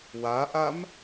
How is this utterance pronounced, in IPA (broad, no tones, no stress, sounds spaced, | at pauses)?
w a ʔ a m